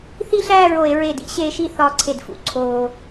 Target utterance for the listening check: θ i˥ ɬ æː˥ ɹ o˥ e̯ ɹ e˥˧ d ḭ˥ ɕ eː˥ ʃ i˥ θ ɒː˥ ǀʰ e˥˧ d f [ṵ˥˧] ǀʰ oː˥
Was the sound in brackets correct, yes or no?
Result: yes